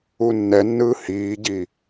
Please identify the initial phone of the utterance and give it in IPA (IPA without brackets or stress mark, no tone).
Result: u